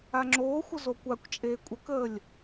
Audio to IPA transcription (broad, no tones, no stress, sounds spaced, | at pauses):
a ŋ͡ǁ oː xʷ ə z o kʷ a kʷ t͡ʃʼ eː kʷʼ ə k əː lʲ